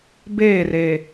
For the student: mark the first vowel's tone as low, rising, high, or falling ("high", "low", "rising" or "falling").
falling